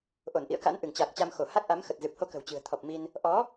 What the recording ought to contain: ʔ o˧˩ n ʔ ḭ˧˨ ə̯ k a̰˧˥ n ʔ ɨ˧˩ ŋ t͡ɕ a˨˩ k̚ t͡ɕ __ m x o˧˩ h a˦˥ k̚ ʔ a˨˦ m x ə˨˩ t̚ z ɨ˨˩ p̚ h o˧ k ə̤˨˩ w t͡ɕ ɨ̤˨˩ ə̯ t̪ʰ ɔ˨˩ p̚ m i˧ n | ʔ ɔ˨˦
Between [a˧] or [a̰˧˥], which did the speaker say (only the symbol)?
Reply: a˧